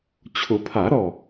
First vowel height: high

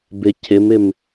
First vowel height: high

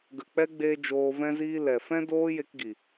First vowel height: mid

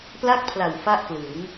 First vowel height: low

